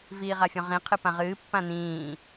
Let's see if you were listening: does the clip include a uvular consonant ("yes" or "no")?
yes